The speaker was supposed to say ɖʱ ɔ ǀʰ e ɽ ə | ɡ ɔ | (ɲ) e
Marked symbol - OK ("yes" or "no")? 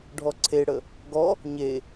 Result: yes